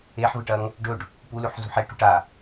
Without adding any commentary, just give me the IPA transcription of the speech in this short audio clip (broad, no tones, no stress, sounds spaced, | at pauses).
e ħ v ɨ ʈ ɐ ŋ | ɖ ɵ ɖ | p u l ʉ ħ z ṳ ħ e ʈ ṳ ʈ a